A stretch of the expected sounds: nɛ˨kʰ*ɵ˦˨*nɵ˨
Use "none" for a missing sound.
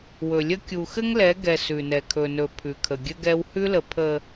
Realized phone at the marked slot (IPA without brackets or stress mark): ɵ˨